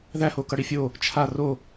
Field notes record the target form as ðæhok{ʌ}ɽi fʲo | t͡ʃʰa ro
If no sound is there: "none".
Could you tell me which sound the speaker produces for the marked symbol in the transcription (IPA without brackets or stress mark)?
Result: ʌ